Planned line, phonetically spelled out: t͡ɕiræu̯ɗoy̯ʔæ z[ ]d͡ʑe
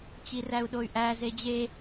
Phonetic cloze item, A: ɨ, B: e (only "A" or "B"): B